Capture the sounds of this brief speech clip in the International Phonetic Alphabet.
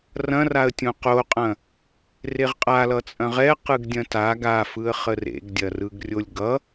r ɐ̃ r a ə̯ tʲ õ q o qʼ ɐ̃ | r e ʁ qʼ a l ʌ t͡sʼ ɐ̃ ʁ ɛ q ɯ ɡ dʲ ɐ̃ t a ɡ a f ɯ ə̯ χ ə r ḛ ɡ dʲ ɐ r ɯ ɡ rʲ o lʲ ɡ ʌ

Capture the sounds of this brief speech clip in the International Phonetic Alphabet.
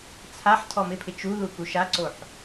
t͡sʰ a ħ tʰ ɔ m ɪ pʰ ɪ t͡ʃ u ð u k u ʃ a ǀ o ħ

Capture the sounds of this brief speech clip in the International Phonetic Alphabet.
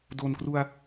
d o˨˩ n k r u˧ a̯

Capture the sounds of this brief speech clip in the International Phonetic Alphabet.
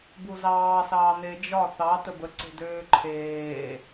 b u z ɑː s ɑː n e d͡ʒ ɒ θ ɑ t ə b ə ǀ e̤ d øː ǃʰ eː

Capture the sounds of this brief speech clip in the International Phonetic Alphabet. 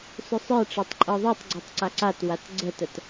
s ʏ sˤ ə˞ ʈ͡ʂ ɛ tˤ ǃʼ ɤ ðˤ i tˤ ɡ͡ǀ i tˤ ǀ a ǀ a t w a t ɡ͡ǀ ə t ə t

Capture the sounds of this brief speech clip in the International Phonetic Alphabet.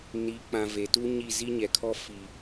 n i˨˦ k͡p ã˨ v e˨ t u˦ ɲ i˦˨ z i˦ ɲ ɛ˨ kʰ ɔ˦ f i˨

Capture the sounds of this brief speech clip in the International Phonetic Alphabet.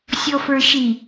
sʲ ɔ f ə˞ ʃ i

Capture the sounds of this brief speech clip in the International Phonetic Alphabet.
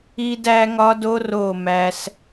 i˦ d æ˦ ŋ ɒ˦ d o˦ r o˦˨ m æ˦ s

